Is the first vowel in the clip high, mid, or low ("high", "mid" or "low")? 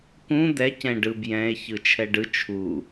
high